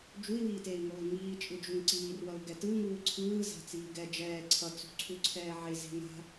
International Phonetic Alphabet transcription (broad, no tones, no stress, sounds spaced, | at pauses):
d͡ʒ u i̯ w iː t eː i̯ ŋ oː i̯ ŋ iː t͡ʃʼ ɯ d͡ʒ u ŋ ǀ iː r w ʌ u̯ ɡ ɛ t ɯ ŋ uː ǀʰ ɯː z a̤ t͡s iː ɡ ɛ d͡ʒ ɛː ǀʰ ʌ t͡s ṳ ǀʰ u ǀʰ ɛː ʕ e z e̤ ŋ a̤